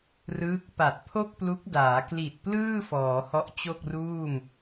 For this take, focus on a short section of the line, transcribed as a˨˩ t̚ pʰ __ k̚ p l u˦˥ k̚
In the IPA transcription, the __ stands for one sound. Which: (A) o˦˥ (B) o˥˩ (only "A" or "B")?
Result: B